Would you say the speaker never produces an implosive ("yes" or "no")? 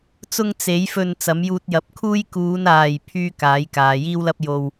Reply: yes